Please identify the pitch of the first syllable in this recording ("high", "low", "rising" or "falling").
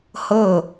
falling